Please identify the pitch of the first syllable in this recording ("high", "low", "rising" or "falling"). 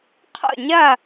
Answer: falling